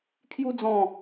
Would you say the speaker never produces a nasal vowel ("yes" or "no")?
no